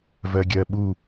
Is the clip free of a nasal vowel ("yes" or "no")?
yes